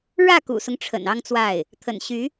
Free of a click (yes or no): yes